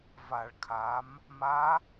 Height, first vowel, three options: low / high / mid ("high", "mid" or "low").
low